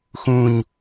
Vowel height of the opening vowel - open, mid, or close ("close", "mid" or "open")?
close